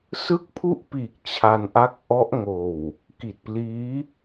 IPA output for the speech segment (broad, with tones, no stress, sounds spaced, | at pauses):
s ɯ˥˩ k̚ pʰ u˥˩ ʔ p iː˨˩ k̚ t͡ɕʰ a˧ n ʔ a˦˥ k̚ ʔ ɔ˦˥ ʔ ŋ oː˨˩ w | k i˨˩ t̚ p l iː˦˥